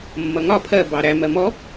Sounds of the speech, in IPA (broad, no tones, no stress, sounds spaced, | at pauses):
mː ʌ ŋ ɒ pʰ ɜ b ɑ ɾ æ m ɜ m ɔ